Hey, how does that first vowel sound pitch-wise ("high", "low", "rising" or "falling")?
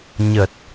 low